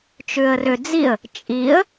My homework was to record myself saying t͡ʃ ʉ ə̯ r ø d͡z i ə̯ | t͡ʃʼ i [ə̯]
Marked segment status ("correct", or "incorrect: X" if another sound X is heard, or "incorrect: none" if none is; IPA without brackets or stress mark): correct